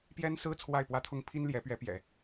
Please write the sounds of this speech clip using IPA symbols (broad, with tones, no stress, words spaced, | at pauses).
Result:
pjɛ˥nsɹ̩˥ t͡sʰwa˥˩ɪ̯pwä˥t̪ʰʊ˥ŋ pʰi˥nljɛ˧˥pɥɛ˧˥pjɛ̰˨˩˦